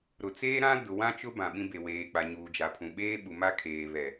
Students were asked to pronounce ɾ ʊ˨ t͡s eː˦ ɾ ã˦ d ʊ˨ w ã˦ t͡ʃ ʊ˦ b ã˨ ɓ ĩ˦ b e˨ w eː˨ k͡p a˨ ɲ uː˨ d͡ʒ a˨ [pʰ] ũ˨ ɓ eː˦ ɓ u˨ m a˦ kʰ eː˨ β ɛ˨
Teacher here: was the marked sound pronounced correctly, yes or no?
yes